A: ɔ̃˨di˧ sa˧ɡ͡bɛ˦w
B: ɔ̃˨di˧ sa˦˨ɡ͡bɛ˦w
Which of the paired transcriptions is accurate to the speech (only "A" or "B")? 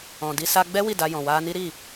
A